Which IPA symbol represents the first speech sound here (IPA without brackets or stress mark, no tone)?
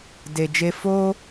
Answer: d